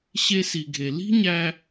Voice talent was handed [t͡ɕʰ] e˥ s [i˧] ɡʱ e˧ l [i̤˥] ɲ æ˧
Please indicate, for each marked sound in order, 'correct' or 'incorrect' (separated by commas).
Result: incorrect, correct, correct